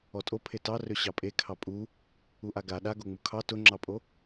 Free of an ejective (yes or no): no